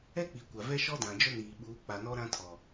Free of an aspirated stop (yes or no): no